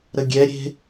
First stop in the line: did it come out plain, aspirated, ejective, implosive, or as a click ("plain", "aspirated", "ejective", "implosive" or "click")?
plain